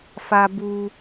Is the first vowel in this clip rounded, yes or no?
no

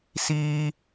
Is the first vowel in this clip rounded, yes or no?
no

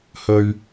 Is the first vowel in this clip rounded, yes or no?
yes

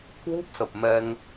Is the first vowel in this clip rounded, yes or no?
yes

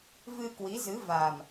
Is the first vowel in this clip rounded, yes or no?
no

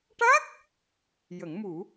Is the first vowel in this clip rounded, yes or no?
no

